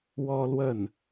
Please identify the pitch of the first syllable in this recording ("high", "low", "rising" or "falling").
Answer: high